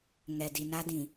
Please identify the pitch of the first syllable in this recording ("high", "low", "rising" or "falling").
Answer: low